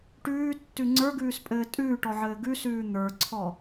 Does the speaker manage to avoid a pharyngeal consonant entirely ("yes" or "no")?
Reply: no